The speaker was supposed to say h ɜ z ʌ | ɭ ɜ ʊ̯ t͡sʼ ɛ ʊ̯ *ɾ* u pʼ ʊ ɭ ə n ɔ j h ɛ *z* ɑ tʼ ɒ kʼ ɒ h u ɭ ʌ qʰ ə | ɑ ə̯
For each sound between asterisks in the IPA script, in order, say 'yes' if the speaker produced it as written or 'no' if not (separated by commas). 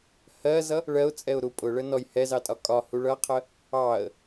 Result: yes, yes